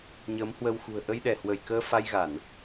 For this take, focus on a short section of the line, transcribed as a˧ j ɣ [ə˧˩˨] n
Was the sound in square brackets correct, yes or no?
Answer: no